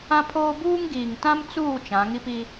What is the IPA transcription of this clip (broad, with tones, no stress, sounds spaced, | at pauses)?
ã˦ pʰ oː˦ b uː˦ ŋ ɡ iː˨ ŋ t ã˦ m t͡s uː˦˨ t͡ʃ ã˨˦ ŋ i˦ p i˦